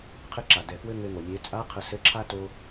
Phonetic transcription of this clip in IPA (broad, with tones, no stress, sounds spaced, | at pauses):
qʰ ɘ˧˥ ǁ a˩ d ɛ˩ k w ɘ˧ ŋ ɘ˧ ŋ o˩ lʲ e˩˧ t͡sʼ a˧˥ qʰ ə˩˧ s ɘ˧˥ ǁʰ a˥ t o˧